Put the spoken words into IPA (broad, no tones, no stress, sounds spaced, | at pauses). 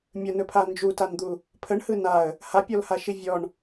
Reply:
mʲ ə n ɵ pʰ a n d͡ʒ u t a n d̪ u | pʰ ə ɳ h ɯ n a ə̯ | h a pʲ ɔ l h a ʃ i vʲ ɔ ɳ